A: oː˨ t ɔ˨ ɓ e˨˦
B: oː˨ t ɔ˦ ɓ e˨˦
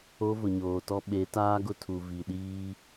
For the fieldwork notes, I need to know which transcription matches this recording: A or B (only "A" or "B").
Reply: B